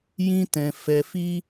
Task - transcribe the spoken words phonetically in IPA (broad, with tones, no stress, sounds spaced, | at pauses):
j ĩ˦ t ɛ̃˧ f ɛ˧ f i˦